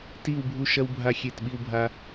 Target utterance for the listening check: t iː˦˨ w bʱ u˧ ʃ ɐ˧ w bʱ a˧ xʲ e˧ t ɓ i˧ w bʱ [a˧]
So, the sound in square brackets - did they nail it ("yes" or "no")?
no